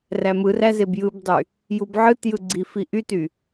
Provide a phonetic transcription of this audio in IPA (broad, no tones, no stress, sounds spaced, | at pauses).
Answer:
r æ m ɯ r æ z e b j ɯ b dˤ y | j u b ʕ ɯ t j ɯ ɡ͡ǀ i f i ʔ y t y